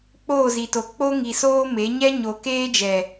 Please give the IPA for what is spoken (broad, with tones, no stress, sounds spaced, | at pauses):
k͡p oː˦˨ z i˨ t o˨ k͡p o˦ ŋ i˨ s oː˦ m e˨˦ ɲ ɛ˦ ɲ o˨ k eː˦ d͡ʒ ɛ˨